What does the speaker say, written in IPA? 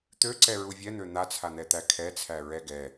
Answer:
t̪ ø ǀ ɛ ɹ u vʲ ɛ n̪ ø n̪ a t͡sʰ a n̪ ɛ t̪ æ kʰ ɛ t͡sʰ æ ɹ ɛ ɡ ɛ

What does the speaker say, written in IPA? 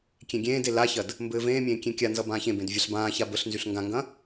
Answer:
kʲ ẽ ɡʲ ẽː d e l a ç ɐ d | m b ɘː v ẽː mʲ ẽː kʲ ẽ kʲ a n z ʌ b ãː ç ẽ b ẽ d vʲ a ɬ b ãː ç a b ə ɬ n z y ɬ ŋ ɡ ã ŋ ɡ ɐ̃

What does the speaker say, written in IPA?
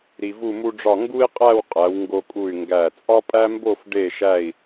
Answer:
ɾ i˧ v u˥˧ m u˥ ɖ͡ʐ ɒ˥˧ ŋ ɡ u˥ i̯ qʼ æ˥˧ w qʼ æ˩˧ w ŋ ɡ o˧ kʼ u˧˩ y̯ ŋ ɡ æ˧˩ t͡sʼ ɒ˥ pʼ æ˥ m b o˥˧ f ɖ e˧˩ ʃ æ˧˩ i̯

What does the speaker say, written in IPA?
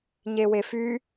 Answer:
ɲ e w e f y

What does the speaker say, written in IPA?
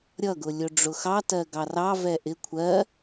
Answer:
ɾʲ ʌ ɡ ʊ lʲ ʊ ɖ͡ʐ ʊ x ɑ t ɜ ɡ ɑ r ɑ v ɛ ʔ ɪ kʷʰ ɜ

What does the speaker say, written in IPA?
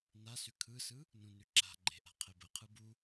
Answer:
n a s ʉ kʰ ɯ s ɯ | n ũ n ʉ ǁ a̤ ɡ͡ǃ e̤ ʔ a̤ qʰ e b ə qʰ ɯ b u

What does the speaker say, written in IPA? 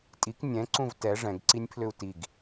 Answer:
tʼ i k nʲ ɛ̃ ǀ ũ v t ɛ ʐ ɛ̃ ɡ ǀ i nʲ pʰ l ʏ u̯ t i ɡ

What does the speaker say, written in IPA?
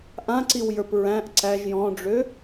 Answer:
ʔ ã ǀ i w j ə˞ p ɹ æ̃ ʔ ǀ æ ʒ j ɔ̃ ɖ͡ʐ ø

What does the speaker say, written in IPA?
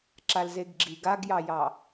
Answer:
ǁ a l z e ɡ ɡ͡ǁ i ɡ a ɡ j ɑ j ɑ

